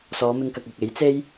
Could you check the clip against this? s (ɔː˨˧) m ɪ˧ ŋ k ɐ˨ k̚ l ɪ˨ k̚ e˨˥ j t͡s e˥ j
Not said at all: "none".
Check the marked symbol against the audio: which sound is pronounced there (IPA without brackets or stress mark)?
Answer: ɔː˨˧